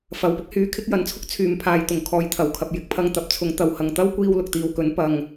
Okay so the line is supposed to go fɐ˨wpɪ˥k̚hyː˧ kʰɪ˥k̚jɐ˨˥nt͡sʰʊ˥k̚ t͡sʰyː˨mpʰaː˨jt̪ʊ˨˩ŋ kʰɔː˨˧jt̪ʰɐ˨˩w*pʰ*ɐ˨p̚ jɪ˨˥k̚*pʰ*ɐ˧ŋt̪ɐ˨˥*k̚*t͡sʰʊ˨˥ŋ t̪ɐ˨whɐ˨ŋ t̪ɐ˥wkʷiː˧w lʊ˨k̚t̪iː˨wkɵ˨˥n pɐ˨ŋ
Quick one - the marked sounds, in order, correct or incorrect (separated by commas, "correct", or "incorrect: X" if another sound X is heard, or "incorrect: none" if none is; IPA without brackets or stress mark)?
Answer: incorrect: kʰ, correct, incorrect: p̚